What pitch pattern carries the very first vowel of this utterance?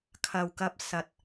low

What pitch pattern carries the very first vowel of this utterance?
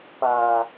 low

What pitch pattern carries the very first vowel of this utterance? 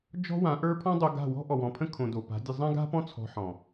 high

